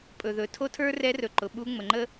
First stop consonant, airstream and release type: ejective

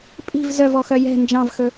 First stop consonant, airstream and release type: ejective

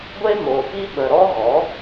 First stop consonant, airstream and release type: plain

